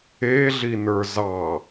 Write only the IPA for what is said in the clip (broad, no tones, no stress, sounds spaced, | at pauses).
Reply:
e ɮ i n ə˞ z ɑ